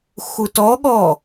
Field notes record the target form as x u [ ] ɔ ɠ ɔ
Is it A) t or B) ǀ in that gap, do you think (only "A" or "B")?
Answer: A